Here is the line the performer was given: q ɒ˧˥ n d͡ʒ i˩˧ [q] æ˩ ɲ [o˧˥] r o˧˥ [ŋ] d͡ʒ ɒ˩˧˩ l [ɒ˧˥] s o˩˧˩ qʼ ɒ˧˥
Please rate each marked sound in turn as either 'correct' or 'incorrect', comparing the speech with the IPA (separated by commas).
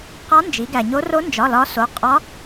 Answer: incorrect, correct, incorrect, correct